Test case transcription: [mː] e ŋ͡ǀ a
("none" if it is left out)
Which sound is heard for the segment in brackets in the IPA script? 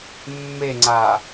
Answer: mː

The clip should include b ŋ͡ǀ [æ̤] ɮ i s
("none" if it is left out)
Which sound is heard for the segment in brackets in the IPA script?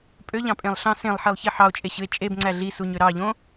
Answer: æ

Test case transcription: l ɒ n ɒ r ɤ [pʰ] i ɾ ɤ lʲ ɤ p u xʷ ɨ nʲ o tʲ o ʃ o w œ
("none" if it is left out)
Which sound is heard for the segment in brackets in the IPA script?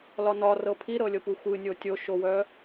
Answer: pʰ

